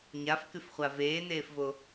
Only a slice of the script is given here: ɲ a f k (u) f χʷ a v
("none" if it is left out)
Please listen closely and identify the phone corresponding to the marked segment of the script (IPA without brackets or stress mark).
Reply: ʉ